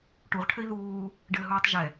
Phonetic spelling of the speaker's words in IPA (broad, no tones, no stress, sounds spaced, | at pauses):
ʈ u ʁ ʈʰ ɘ i̯ ð uː | ɖ ɘː ɦ uː tˤ ʒ ɛ